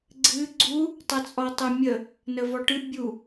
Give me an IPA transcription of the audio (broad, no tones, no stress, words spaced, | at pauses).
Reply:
ɡ͡ǀɨ ɡ͡ǀu | tˤɛt͡sʼɔtˤɨmʲə | nəvɔʈɨ bʲu